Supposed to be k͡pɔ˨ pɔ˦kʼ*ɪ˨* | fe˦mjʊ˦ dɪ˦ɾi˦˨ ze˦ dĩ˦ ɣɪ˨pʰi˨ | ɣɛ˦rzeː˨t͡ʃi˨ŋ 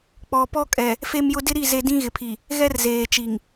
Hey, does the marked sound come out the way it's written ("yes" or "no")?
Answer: no